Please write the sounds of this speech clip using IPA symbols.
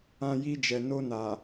ã˧ji˧ d͡ʒɛ˨no˧na˨

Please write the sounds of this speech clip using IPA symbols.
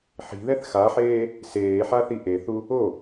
ħi̤ðɛθ xaħeː | seːħaθi ʔeθu | o

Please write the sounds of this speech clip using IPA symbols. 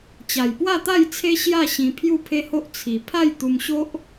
t͡ɕa˨˩jpwa˥˧t̪a˥˧jt͡sʰe˦ ɕja˥˧ ɕĩ˧ pʰju˥˧pʰe˦ho˦ʔ t͡sʰi˨˩ pʰa˥˧jt̪u˧mɕo˦ʔ

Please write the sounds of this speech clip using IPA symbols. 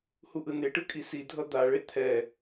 huʔɯneʈɯ kʼisidʱʌ d̪aɭe t̪ʰɛ

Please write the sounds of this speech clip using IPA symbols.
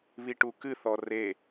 βiʈukɨθɔ re

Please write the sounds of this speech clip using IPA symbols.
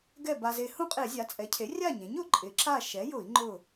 ɡɛ˥˨ba˧ze˧ hũ˥˨qʼe˧˩˧zʲa˩˥ t͡sʼɛ˩˥cʰe˩˥ rʲa˥˨ɲẽ˩˥ɲ ʊ˩˥ ǃʼɪ˩˥ ǁa˥˨ ʃɛ˩˥jʊ˧˩˧i̯ ŋ͡ǃʊ˥˨

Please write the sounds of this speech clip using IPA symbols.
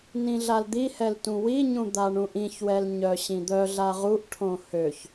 nĩɮald̪ihɛl tũwiɲũ d̪aɳũʔĩçwɛl ɲœɕĩd̪œɮa ʁuʔʈʰõ høç

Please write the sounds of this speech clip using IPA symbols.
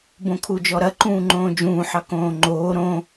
bõkʰud͡ʒɔɾɐ ǃũːŋ͡ǃõːd͡ʒũː ħɑkõːŋ͡ǃoː ɾõ

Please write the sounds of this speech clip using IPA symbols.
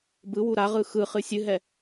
bɯwu ɾaʁɯ xɯχɨ sʲɨɦɛ

